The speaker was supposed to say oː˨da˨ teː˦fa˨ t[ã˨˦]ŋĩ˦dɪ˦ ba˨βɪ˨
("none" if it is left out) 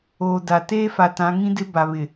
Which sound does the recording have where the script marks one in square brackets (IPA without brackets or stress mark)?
ã˨˦